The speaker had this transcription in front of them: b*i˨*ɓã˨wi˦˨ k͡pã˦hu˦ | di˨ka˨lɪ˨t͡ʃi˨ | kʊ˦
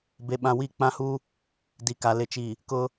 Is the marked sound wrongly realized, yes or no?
yes